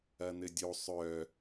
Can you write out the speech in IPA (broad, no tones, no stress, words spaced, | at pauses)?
ɐn̪ɘdʲo sˤœ